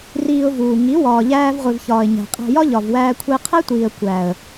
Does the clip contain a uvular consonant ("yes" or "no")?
yes